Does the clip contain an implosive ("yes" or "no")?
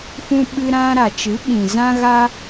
yes